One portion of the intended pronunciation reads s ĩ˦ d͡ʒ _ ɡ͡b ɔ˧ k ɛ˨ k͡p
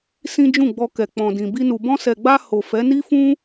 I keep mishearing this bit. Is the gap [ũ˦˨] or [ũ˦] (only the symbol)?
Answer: ũ˦˨